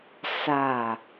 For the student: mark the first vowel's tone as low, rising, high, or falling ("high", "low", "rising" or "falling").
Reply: falling